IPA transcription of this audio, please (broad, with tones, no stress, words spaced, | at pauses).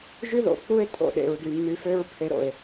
ʒy˦ðo̰˨k͡pu˦e̯ tʼo̰˨ɗḛ˨ɹdy˨mːy˧ fø˦ɹpʰe˧ɾo̰˨e̯